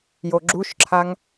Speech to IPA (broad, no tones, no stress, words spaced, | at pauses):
joɡ͡ǁuʃǁʰaŋ